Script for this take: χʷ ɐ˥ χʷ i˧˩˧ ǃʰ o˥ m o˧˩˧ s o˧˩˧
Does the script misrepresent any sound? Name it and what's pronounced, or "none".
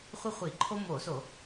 ɐ˥ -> ə˥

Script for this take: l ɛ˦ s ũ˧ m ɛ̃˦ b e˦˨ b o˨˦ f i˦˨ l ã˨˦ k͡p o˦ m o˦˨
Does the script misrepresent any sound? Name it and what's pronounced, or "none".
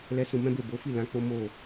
none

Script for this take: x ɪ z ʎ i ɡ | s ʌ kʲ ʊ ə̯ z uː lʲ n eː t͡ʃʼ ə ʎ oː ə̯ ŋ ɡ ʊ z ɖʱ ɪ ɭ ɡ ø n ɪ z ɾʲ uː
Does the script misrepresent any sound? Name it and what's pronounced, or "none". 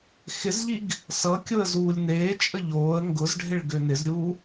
none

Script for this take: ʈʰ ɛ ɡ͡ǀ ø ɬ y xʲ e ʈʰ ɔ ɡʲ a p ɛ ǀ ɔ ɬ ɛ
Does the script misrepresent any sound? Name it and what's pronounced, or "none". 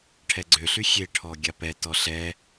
ǀ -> t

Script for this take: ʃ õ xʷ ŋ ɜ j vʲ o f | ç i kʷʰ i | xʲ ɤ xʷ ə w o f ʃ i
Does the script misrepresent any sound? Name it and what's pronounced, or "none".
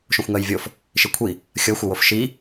ç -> ʃ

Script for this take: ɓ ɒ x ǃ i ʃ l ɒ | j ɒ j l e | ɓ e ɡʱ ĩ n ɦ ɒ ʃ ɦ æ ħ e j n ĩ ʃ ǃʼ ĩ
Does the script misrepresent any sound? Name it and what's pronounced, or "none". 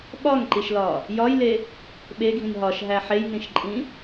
x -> ŋ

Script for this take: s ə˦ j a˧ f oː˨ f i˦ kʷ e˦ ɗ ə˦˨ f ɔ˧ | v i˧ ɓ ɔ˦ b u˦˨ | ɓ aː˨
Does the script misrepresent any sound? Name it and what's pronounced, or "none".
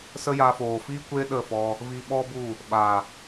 none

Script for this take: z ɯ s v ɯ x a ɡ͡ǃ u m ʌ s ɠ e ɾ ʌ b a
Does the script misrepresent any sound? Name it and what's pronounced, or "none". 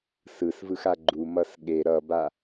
z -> s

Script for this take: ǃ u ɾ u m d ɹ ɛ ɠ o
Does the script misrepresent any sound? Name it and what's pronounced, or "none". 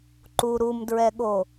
none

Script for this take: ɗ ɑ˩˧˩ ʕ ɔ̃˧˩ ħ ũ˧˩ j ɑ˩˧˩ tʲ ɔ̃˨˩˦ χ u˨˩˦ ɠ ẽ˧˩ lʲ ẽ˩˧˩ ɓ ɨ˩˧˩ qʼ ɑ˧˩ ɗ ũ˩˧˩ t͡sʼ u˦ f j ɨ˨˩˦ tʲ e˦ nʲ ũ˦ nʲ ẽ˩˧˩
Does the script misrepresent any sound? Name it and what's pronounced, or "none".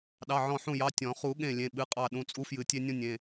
none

